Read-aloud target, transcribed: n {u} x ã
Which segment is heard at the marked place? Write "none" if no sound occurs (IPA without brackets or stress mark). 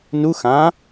u